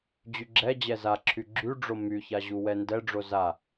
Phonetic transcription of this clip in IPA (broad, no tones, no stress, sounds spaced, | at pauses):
d͡ʑ y ɡ͡ǁ ɛ d͡ʑ ɛ z a ǁʰ y ɡ͡ǁ y ɖ͡ʐ o m y ç a ʑ u w ɛ n d ɛ ɖ͡ʐ o z a